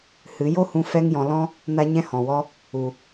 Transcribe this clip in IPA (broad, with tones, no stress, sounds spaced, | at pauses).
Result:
h ɨ˨˦ j o˦ h ũ˧ f ɛ˦ ŋ j ɔ̃˧ l ɔ̃˦ | n a˦ ɲ ɛ̃˦ h ɔ̃˨ w ɔ˦ | u˨